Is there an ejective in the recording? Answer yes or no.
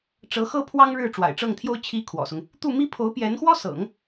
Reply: no